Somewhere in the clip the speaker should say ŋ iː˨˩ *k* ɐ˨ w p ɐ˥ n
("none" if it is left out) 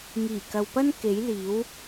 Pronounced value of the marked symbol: k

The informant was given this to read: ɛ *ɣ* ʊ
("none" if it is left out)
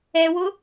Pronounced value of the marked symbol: w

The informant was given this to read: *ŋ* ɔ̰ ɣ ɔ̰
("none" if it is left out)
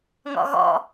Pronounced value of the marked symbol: ŋ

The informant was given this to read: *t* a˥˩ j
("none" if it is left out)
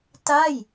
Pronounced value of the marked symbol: t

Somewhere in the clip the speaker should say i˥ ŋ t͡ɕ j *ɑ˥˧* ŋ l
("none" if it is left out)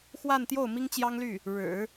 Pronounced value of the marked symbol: ɑ˥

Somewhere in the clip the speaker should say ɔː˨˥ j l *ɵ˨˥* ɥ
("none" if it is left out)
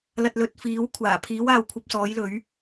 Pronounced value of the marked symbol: ɵ˨˥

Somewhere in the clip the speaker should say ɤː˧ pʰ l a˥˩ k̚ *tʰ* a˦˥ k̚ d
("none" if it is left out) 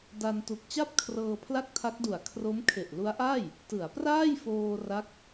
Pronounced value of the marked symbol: tʰ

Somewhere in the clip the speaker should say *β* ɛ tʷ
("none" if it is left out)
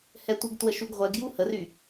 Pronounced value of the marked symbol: h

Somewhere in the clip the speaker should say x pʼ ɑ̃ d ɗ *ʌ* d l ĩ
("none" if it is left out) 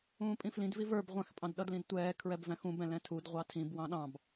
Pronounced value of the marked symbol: ʌ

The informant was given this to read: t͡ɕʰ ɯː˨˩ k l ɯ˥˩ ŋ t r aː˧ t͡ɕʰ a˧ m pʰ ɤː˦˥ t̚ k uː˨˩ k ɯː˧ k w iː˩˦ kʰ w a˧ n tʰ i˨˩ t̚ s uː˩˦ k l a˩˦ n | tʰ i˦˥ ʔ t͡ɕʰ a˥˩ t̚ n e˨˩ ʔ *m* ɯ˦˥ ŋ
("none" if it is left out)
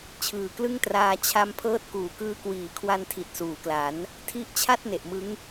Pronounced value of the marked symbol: m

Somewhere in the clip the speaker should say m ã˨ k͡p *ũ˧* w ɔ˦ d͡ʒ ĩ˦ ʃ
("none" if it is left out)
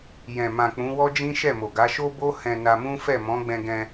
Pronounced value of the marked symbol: ũ˨˦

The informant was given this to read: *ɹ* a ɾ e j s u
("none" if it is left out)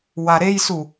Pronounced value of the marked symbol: w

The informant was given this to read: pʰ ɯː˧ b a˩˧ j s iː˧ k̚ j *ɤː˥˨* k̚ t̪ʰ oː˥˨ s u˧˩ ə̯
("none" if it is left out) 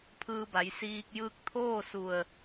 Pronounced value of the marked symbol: ɯː˥˨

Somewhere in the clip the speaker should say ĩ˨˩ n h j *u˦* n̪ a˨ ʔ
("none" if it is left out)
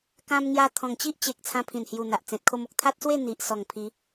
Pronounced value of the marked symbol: u˨˩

